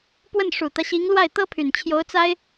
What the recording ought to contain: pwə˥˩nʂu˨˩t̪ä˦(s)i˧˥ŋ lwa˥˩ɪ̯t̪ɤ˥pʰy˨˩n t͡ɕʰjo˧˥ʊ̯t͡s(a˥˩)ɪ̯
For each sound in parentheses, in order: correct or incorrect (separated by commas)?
incorrect, incorrect